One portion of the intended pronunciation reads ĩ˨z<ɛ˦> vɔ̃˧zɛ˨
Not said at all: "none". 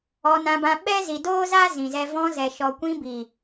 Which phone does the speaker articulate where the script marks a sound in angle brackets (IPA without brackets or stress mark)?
ɛ˧